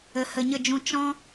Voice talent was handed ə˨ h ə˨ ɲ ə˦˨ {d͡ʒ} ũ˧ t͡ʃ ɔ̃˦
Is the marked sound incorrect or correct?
correct